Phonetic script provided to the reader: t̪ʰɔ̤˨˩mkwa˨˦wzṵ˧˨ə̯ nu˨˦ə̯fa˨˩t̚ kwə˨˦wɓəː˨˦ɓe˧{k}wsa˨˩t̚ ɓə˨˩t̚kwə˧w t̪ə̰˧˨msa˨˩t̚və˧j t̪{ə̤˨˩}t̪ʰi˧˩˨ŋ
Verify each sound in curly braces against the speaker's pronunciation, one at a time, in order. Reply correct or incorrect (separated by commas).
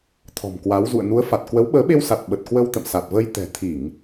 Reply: incorrect, incorrect